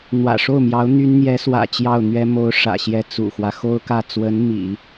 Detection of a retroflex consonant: present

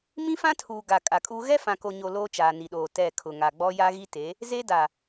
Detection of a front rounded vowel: absent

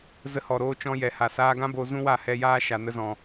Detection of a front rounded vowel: absent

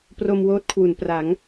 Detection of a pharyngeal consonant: absent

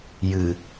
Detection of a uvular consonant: absent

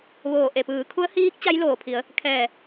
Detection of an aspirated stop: present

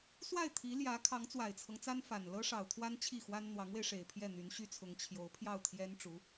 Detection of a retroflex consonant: present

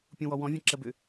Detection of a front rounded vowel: present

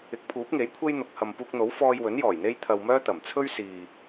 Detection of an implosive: absent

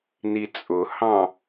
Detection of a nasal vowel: present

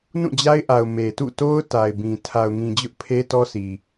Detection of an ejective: absent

